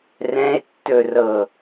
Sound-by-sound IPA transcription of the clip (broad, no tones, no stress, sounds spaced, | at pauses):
r ɛ̃ e̯ tː ɵ r ɤ